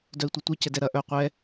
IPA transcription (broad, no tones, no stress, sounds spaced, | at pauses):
d œ i̯ tʷ ɐ tʷ ɛ c ɛ d ɛ ɾ ɐ ʔ œ qʷ ɛ